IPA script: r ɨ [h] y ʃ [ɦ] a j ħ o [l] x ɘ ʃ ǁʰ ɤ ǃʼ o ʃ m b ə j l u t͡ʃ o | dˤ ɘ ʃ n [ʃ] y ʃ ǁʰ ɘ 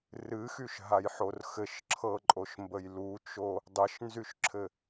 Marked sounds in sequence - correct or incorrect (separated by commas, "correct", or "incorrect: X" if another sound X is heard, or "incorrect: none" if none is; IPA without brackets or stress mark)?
incorrect: x, correct, incorrect: r, incorrect: z